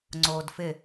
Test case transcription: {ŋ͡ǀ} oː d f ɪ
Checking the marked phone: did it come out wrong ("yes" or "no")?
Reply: no